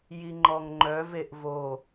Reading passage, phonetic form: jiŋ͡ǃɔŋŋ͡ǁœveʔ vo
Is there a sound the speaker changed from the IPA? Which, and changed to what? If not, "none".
ŋ͡ǁ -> ŋ͡ǃ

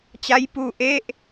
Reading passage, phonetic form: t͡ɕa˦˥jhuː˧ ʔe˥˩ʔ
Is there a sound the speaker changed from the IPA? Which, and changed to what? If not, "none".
h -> p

